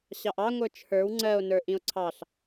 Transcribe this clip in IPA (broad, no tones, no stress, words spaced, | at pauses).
ɕɑʔɑ ŋʷə˞t͡ʃʰə˞w ŋ͡ǀɜo̯ nə˞ʔĩo̯ǀʰɑɬ